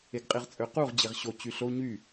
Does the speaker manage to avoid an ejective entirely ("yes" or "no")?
no